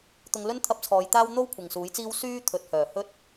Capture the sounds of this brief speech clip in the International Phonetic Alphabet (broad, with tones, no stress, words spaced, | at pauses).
t̪ʊ˧ŋ lɵ˥nt̪ʰɐ˧p̚t͡sʰɔː˨˧jt̪aː˥w n̪o˥w kʷʰɪ˨ŋsuː˨˥jt͡siː˥w syː˥ t̪ʰɵ˨˥t̚ hœː˨˩ hɵ˥t̚